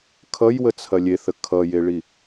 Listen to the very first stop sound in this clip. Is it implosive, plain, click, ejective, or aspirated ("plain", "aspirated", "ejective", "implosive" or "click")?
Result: aspirated